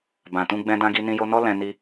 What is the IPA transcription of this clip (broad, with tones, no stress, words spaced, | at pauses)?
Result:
bã˨tũ˧ ɡ͡bɛ̃˧dã˧ ɡi˧nĩ˧jo˧nɔ˦ lɛ̃˧ni˧